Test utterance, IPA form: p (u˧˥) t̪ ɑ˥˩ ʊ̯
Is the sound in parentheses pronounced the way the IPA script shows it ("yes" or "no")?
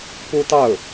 no